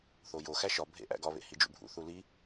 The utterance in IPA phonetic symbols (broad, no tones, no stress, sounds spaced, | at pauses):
θ o j o x æ ʃ ɒ bʱ ḛ ʔ æ̰ ɡ ɒ β ḛ h i d͡ʒ ṵ bʱ ṵ θ u l i